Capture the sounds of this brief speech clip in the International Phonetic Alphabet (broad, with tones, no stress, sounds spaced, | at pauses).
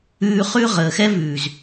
ʉː˧ χ ʉ˦ ʁ əː˨ x ɛ˦ v ʉː˨ z